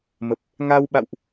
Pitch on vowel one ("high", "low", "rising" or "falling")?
low